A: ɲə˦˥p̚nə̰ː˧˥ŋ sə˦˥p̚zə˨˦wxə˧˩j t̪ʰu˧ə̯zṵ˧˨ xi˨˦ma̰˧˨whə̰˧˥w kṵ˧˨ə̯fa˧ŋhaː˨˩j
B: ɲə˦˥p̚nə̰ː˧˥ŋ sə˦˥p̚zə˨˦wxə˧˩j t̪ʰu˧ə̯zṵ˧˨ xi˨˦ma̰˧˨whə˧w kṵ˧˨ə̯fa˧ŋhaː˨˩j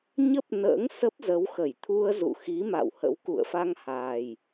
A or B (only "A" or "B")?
A